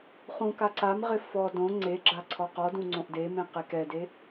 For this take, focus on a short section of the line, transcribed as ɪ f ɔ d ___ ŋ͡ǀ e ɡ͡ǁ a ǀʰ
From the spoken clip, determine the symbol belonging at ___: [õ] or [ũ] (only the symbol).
õ